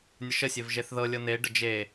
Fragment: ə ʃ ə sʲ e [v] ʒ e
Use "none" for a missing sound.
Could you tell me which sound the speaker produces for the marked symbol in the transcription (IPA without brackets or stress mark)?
v